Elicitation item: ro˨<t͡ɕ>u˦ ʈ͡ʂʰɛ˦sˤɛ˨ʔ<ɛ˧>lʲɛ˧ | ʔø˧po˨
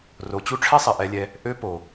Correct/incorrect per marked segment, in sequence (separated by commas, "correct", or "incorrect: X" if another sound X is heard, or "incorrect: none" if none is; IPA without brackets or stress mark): correct, correct